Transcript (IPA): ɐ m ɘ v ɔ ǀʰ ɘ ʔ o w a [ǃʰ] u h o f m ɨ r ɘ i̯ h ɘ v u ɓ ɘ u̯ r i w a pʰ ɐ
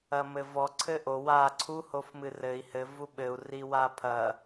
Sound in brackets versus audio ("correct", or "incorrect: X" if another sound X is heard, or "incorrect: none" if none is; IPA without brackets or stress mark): incorrect: ǀʰ